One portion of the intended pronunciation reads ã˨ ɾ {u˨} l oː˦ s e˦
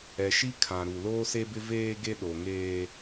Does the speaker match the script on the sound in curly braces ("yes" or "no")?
yes